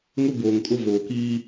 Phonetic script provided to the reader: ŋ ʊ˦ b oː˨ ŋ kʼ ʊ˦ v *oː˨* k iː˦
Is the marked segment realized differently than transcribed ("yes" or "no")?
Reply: no